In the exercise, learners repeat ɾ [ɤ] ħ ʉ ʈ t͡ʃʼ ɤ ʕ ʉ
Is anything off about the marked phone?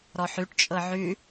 yes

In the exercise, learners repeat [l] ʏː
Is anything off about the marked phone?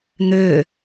yes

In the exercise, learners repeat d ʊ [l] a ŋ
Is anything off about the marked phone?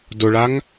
yes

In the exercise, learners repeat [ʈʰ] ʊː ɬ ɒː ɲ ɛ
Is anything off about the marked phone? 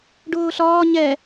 yes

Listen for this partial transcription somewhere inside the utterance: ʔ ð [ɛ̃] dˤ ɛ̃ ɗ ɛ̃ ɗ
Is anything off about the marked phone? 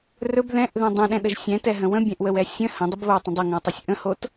no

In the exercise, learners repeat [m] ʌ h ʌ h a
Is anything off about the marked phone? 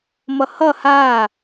no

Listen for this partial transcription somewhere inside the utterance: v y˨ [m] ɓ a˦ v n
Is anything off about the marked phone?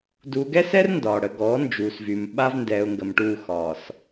no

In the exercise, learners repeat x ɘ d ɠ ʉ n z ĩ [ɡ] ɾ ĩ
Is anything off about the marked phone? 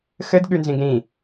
no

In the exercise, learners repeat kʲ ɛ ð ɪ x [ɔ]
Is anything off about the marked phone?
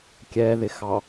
yes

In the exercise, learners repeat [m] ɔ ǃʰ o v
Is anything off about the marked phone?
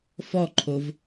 yes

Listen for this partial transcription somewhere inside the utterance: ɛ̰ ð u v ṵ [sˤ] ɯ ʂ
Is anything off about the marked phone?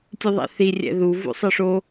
no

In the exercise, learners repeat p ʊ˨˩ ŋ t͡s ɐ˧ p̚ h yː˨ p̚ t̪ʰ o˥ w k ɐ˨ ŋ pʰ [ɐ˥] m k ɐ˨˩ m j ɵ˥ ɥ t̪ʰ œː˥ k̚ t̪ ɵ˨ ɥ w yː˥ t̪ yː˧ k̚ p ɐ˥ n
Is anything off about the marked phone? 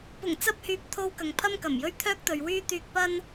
no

